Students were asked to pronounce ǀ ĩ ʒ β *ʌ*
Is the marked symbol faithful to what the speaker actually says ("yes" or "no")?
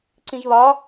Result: no